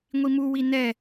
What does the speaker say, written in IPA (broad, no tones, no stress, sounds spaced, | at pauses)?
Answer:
ŋʷ i m u w i n ɛ